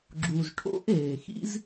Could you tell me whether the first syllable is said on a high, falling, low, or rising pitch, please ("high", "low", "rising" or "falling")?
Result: low